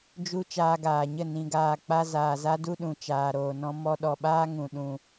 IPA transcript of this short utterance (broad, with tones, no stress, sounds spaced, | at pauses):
d͡ʒ u˦ t͡ʃ aː˧ ɡ aː˨ ɲ ə˦˨ n ĩ˧ ɡ aː˧ k͡p a˦ z aː˨ z a˦ d u˦ ɗ ũ˨ t͡ʃ aː˨ ɾ oː˨ n ɔ̃˧ m ɔ˧ ɗ ɔ˨ ɓ aː˦ ŋ ũ˨ ɗ ũ˨